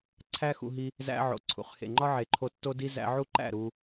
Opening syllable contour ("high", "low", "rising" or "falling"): high